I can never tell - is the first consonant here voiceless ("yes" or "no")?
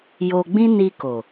no